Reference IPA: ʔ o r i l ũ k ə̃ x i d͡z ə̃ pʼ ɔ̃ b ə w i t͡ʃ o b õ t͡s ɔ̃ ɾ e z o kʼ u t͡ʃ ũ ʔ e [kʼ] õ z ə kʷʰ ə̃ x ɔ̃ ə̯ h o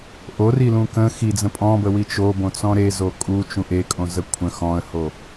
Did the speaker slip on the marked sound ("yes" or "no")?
no